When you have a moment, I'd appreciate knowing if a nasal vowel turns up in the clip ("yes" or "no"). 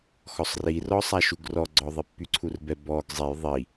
no